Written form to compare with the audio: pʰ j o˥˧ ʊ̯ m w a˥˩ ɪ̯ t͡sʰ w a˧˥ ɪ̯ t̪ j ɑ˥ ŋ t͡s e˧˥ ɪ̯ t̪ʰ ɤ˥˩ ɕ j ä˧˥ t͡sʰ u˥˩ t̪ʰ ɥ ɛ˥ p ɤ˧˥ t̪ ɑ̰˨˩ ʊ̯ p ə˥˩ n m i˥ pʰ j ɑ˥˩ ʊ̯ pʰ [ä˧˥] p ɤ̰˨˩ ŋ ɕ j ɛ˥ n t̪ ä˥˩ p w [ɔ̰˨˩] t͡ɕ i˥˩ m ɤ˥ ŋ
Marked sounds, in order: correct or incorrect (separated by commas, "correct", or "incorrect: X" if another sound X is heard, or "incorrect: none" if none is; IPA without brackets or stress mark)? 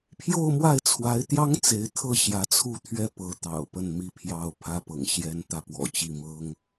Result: incorrect: ä˥, correct